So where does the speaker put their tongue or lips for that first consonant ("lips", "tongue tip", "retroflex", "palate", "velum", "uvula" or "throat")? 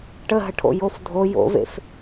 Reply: retroflex